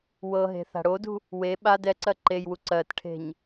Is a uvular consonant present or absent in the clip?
absent